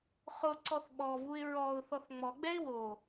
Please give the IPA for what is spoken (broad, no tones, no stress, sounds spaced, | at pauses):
χ ʊ ǀ ɔ θ ɓ ɔ v u ɪ̯ ɹ ɔ ʊ̯ θ ɔ θ ŋ͡m ɔ ɡ͡b ɛ ɪ̯ w o